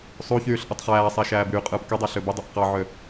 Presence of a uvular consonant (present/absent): present